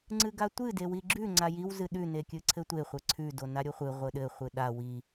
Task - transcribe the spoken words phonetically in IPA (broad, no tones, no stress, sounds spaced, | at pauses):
ŋ͡ǀ ɨ ɡ a tʷ ɨ d e w i ɡ͡ǁ ʉ ŋ͡ǀ a j i w z ɨ ɗ ʉ n e kʲ ɨ ǀʰ ɘ tʷ e χʷ ɘ ǀʰ ʉ d o n a ɾʲ o χʷ ɨ ʁʷ ɘ ɗ ɘ χʷ ɨ ɗ a w i